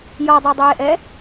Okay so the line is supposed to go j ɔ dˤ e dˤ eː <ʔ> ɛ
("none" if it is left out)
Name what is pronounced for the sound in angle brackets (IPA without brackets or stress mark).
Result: ʔ